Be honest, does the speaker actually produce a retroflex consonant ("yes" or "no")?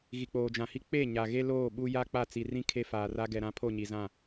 no